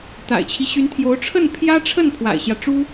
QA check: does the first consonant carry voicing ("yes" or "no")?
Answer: no